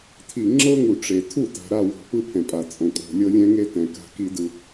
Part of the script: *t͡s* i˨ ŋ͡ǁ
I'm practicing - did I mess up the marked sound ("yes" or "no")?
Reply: yes